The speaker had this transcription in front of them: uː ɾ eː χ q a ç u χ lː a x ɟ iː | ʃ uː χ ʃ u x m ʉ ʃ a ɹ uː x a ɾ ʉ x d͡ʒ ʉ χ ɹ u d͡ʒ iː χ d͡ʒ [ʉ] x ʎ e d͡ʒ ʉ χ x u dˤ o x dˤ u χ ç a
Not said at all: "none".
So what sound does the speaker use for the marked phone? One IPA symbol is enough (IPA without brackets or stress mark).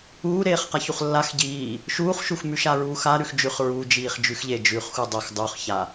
ʉ